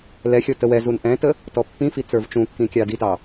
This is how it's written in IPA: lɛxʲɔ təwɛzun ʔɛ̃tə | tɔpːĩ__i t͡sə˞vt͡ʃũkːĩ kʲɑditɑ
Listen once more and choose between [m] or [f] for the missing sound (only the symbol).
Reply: f